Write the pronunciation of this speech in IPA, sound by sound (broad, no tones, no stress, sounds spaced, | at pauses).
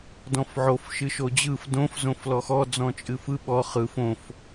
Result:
d ɔ̃ f ʕ o f ʃ ɨ ʃ o d͡ʑ ɯ f d õ f z õ f l ɔ x ɔ d͡z ɔ̃ t͡ʃʼ ɨ f ɯ ɓ ɔ χ ɯ f õ f